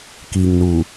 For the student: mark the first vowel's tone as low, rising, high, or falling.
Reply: low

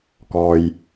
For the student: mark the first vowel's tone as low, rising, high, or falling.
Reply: low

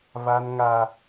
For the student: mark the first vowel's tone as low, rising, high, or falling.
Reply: high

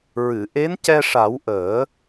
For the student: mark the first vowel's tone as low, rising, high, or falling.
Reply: low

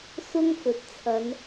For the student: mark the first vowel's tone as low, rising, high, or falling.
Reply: high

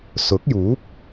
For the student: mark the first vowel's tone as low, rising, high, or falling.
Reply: rising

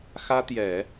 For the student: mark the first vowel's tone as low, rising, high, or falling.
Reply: high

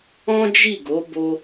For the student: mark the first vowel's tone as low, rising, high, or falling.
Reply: high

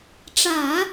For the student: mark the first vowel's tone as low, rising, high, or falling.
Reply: low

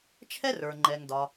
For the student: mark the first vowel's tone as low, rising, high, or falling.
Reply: high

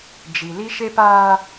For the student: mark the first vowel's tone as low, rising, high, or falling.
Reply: low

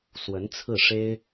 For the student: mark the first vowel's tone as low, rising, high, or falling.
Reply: rising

